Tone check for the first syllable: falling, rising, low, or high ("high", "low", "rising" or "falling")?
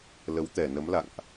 rising